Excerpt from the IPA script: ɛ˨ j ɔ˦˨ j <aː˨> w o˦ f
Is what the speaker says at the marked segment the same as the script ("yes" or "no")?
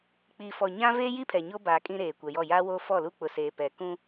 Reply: no